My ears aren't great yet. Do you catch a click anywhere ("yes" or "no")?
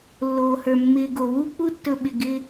no